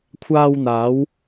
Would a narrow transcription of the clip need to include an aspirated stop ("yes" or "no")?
yes